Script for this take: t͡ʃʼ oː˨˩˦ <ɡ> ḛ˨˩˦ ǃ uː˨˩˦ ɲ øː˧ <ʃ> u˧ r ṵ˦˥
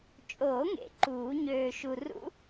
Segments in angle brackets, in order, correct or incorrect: incorrect: ŋ, correct

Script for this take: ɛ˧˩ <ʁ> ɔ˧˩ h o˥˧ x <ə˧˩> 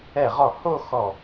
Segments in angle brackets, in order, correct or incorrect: correct, incorrect: ɔ˧˩

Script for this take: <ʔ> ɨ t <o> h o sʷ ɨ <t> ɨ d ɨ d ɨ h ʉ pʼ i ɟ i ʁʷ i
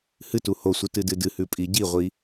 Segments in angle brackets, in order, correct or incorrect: incorrect: h, incorrect: u, correct

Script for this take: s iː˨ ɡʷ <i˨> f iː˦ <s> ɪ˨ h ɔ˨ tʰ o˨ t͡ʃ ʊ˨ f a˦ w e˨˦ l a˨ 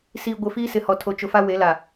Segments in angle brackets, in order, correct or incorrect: incorrect: ɪ˨, correct

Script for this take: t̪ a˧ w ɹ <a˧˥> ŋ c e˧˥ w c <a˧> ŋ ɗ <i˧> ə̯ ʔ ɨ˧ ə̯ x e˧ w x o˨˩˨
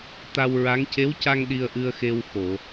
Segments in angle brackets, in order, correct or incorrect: correct, correct, correct

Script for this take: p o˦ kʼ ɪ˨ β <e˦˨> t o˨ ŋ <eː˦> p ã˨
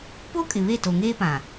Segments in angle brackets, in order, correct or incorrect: correct, correct

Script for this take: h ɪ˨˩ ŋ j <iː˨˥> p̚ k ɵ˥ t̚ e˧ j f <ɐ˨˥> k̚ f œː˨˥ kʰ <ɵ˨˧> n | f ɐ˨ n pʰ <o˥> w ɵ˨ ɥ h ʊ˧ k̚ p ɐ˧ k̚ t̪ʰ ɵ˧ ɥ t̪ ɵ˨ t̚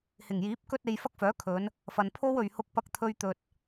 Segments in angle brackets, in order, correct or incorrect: correct, incorrect: ɐ˥, correct, correct

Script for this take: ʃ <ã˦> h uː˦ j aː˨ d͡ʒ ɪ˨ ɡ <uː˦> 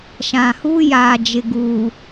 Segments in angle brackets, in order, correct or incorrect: incorrect: ã˨, incorrect: uː˨

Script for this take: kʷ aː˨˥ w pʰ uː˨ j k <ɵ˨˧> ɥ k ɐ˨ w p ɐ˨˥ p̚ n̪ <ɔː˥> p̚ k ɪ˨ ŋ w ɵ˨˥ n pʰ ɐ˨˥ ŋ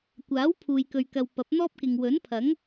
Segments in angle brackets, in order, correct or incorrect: incorrect: ɵ˨, correct

